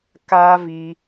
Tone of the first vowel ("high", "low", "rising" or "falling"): high